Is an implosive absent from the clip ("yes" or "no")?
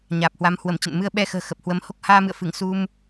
no